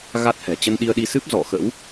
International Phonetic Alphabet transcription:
ɣ a˦˥ t̚ h ɛ̤˨˩ t͡ɕ ə˧ n ɗ i˧ ə̯ ɗ i˧ s ɨ˦˥ p̚ z ɔ̰˧˨ x ə̰˧˥ w

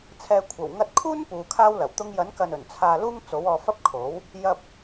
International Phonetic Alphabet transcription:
t͡sʰ ɛː˨ kʷʰ ɐ˨˩ w ŋ ɐ˧ t̚ kʰ uː˥ n p uː˨˧ kʰ aː˥ w l ɐ˨˩ w t̪ ʊ˧ ŋ j ɐ˨˥ n k ɐ˨ n ɵ˨˩ n t͡sʰ aː˧ l uː˥ ŋ t͡s o˨˥ w ɔː˨˧ f ɐ˥ p̚ kʰ o˨˥ w | j ɐ˧ p̚

